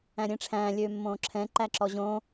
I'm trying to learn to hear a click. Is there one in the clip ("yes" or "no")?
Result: yes